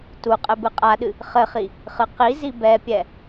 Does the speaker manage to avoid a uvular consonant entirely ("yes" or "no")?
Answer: no